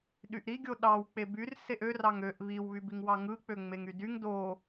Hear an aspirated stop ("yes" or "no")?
no